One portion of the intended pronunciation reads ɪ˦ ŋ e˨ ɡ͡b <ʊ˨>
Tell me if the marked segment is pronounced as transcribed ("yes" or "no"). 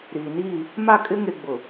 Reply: yes